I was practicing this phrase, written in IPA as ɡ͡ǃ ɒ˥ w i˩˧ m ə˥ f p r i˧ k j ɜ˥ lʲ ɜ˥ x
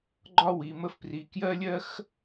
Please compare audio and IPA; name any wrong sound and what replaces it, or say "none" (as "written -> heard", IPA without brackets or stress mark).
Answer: none